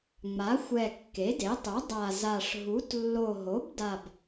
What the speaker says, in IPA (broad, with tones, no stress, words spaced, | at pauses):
ŋ͡ma˩˥xʷɛ˨˩ kːe˩˥de˩˥tˤu˩˥ dˤa˨˩za˨˩ʂ ɦu˩˥t lːo˨˩ɦo˩˥bda˨˩b